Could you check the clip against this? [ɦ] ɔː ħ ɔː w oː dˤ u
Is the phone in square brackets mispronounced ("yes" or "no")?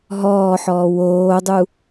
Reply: no